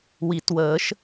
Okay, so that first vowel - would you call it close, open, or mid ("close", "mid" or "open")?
close